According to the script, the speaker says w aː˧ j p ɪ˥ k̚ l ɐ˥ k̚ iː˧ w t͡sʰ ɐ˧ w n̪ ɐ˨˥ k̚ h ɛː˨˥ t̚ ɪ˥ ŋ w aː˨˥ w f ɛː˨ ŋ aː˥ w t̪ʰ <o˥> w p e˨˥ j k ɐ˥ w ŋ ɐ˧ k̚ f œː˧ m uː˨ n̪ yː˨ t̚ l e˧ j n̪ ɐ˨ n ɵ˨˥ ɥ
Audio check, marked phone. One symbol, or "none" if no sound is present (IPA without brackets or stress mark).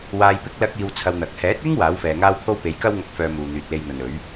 o˥